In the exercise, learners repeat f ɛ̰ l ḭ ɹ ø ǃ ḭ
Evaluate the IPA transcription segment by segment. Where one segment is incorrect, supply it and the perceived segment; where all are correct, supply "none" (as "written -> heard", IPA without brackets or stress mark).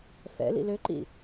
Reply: ɹ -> l